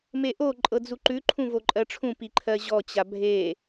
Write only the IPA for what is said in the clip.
m e ʔ o ǃʼ ɤ d͡z u ǃ ʉ ǃʰ ũ v o ǃʼ ɜ ʈ͡ʂʰ ũ p i ǃʰ ɜ ʑ ɔ t͡ɕ a bʱ e

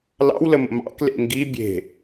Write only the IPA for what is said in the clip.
l ɑ̰ w l ə m ə̰ m ɑ̰ k l ḛ ŋ ɡ i bʲ e̤

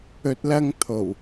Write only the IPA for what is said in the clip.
ɵ˨ t̚ l ɐ˧ ŋ t̪ʰ o˨˩ w

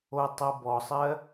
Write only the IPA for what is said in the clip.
o tˤ o b ɔ sˤ ɜ

